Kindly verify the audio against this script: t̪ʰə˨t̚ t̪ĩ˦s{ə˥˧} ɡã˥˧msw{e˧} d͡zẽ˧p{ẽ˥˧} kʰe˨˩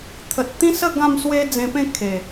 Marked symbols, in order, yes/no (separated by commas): yes, no, yes